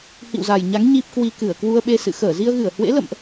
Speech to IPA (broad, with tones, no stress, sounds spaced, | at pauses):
h ḭ˧˨ w z a˨˩ j ɲ a˨˦ ŋ ɲ i˦˥ p̚ k w i˧ k ɨ˧˩ ə̯ k w u˧ ə̯ ɓ e˧ s ɨ̰˧˨ x əː˧˩ z i˧ ə̯ ɣ ɨ˧˩ ə̯ h w ḛ˧˥ l ə̰˧˨ m ʔ